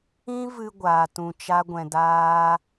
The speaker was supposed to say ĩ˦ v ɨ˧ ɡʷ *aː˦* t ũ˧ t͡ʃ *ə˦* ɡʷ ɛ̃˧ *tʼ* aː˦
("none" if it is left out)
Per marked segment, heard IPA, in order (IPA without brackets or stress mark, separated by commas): aː˧, a˦, d